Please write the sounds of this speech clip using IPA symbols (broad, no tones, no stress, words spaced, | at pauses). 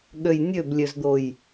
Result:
ɠøjnʲøblʲøzd̪oj